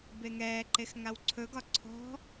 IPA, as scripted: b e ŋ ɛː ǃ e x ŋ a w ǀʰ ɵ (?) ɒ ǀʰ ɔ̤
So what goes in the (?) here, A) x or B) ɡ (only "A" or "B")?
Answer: B